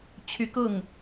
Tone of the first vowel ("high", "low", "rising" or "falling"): rising